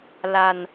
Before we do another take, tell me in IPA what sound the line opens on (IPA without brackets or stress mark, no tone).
l